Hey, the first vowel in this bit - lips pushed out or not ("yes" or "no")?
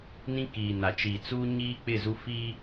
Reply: no